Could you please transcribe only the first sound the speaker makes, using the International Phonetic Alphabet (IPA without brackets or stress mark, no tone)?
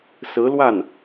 s